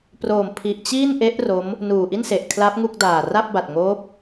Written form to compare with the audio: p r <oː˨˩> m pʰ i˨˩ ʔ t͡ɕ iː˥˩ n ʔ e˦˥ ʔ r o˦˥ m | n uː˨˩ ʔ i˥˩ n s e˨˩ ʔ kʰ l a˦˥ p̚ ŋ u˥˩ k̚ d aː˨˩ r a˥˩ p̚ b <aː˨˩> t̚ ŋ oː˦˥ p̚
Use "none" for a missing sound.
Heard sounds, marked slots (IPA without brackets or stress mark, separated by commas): oː˨˩, a˨˩